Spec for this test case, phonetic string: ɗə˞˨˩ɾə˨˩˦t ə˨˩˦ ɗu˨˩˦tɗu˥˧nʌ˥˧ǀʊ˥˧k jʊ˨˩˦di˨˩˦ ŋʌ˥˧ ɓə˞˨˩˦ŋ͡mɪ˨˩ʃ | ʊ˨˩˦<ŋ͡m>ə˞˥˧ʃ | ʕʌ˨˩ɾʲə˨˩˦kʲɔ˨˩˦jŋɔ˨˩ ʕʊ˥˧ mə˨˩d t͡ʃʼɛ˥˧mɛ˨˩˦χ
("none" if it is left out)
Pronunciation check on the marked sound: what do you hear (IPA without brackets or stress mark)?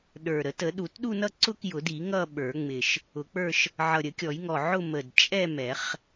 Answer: k͡p